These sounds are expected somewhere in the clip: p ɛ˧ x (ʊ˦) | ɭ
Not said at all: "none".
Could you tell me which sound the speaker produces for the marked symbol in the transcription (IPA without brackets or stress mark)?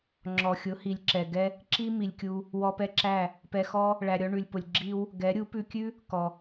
ɔ˦